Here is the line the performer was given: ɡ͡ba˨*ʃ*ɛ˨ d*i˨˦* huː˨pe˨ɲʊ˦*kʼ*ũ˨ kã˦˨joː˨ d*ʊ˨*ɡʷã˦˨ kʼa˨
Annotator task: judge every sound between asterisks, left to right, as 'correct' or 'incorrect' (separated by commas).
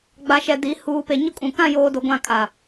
correct, correct, correct, correct